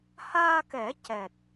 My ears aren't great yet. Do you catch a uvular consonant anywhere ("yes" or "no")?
no